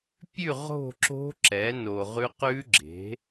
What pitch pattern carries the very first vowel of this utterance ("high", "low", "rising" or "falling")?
falling